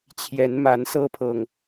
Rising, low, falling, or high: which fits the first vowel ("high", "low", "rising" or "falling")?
rising